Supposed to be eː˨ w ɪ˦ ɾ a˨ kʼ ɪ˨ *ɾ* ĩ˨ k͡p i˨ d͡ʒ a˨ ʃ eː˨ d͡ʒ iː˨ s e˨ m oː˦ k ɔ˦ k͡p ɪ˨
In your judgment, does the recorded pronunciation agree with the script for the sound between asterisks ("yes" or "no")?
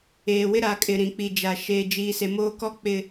yes